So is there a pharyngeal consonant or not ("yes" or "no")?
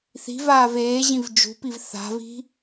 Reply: no